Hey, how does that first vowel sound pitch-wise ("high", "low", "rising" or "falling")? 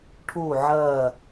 falling